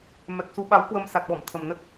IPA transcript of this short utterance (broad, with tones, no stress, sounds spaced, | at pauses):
m ɛ˨˩ k̚ s u˨˦ ɓ a˨˦ w k w ə˧ m s a˨˩ t̚ ɓ ɔ˧˩ m t̪ʰ ə˨˩ m n ə˦˥ t̚